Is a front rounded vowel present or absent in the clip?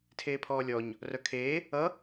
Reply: present